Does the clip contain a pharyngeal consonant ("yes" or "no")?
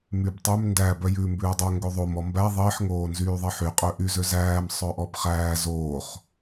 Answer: yes